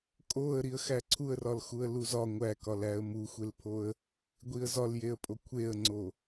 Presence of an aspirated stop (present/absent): present